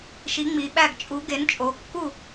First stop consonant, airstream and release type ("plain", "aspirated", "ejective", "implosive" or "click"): implosive